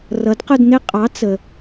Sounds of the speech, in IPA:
r ʌ˨˥ d q ʊ˥˧ d n ɪ˥˧ qʼ ɑ˨˥ t͡s ə˨

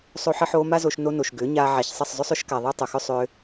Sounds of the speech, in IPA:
sˤ o˧ ħ ə˧ ħ oː˧ m a˦ z o˧ ʃ n o˧ n o˨ ʃ ɡ ʏː˨˦ ɲ aː˧ ʕ a˨ ç sˤ ə˦˨ sˤ zˤ ʏ˦ sˤ ʏ˦ ʃ k a˨ ðˤ əː˦ tˤ ʊ˨ x ʏ˦ sˤ ʏː˧

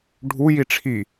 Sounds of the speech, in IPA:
ɖʱ u j i ʈ͡ʂʰ i

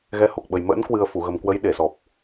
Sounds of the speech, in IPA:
ɣ ɛ˨˦ h o˨˩ k̚ ɓ ə˨˩ j m ə̰ː˧˥ n k w ɨ˨˩ ə̯ f u˧˩ ɣ ə˨˩ m k w ə˨˦ j ɗ e˧˩ s ɔ˨˩ p̚

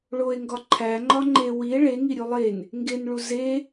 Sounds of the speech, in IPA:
ɭ o e̯ ŋ ɡ ɒ ǃʰ æ ŋ͡ǃ ɒ ŋ͡ǃ e w i e̯ ɭ e ŋ i ɾʲ u lˠ e n | ŋ ɡ e n ɭ u z e

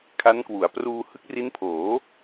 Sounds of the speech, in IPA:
kʰ a˦˥ n k w u˩˦ a̯ p r uː˧ h ɯ˦˥ k̚ r i˦˥ n pʰ oː˩˦

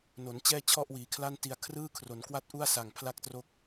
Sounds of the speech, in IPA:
n o˩˦ n t͡ɕ ɛː˥˩ t͡ɕʰ ɔ˥˩ ʔ w iː˩˦ kʰ l a˥˩ n t i˧ a̯ kʰ r ɯː˥˩ kʰ r o˩˦ n k w a˥˩ t̚ ʔ u˥˩ a̯ s a˨˩ ŋ pʰ l a˥˩ k̚ t r o˦˥ k̚

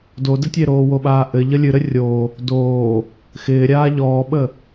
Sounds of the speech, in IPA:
d o d ɘ tʲ e ɾ oː w o ɓ aː ʔ ɘ ʎ ə lʲ ɨ ɾ ɘ rʲ o | d oː | x ɪː ɾʲ aː ʎ ɔː ɓ ə

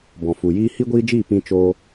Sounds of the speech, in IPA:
b ɔ̃˨ f u˨ j iː˦ h i˦ ɡʷ iː˦ d͡ʒ iː˦˨ p ĩ˧ t͡ʃ oː˦

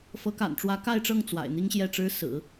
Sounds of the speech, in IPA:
f ɤ˧˥ k a̰˨˩ n ʈ͡ʂ w ä˧˥ k a˥˧ ɪ̯ ʈ͡ʂ ɤ˥˩ ŋ t͡s w a̰˨˩ ɪ̯ n̪ i˥ ŋ ɕ j ɛ˥˩ ʈ͡ʂ ɻ̩˥ s ɹ̩˨˩˦

